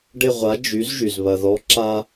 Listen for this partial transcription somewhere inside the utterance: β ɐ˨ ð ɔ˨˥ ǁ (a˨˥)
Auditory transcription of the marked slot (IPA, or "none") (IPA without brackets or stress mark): a˥